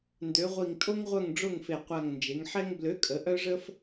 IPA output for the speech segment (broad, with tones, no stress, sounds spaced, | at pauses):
n d ø˩˧ ʁʷ i˨˩ ŋ tʼ o˦ ŋ ʁʷ œ˦˨ ŋ ɖ͡ʐ o˦˨ ŋ f e˨˩ qʷ a˨˩ ŋ n d͡ʒ e˩˧ ŋ ħ ɛ˦ ŋ b l ø˨˥ kʼ ə˩˧ ʔ œ˦ ʐ ə˦ f